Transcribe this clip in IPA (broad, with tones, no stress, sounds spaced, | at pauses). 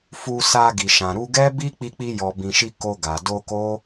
f u˧ s a˧ ɡ i˨ ʃ ã˨ ɾ u˧ ɡ ɛ˦ b i˦ k͡p i˧ k͡p i˧ j ɔ˨ b ĩ˨ ʃ i˧ k o˧ ɡ a˨ d o˧ k o˦